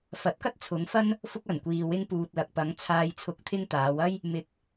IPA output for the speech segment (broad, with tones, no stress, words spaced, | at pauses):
fɐ˨˥t̚kɐ˥t̚t͡sʰʊ˨˧ŋfɐ˥n | fʊ˧k̚ɐ˨˩nkʷiː˨ wɪ˧ŋpuː˨t̚lɐ˨k̚ pɐ˨˧ŋ t͡sʰaː˧jt͡sʰʊ˧k̚t̪ʰɪ˥ŋ t̪aː˨˧wɐ˥j | mɪ˨k̚